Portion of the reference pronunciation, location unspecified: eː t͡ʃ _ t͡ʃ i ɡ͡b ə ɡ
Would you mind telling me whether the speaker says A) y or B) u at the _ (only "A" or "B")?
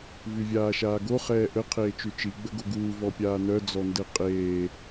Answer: A